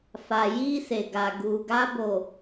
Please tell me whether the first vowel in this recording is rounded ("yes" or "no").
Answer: no